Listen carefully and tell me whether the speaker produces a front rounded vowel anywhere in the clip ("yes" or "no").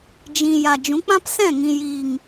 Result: no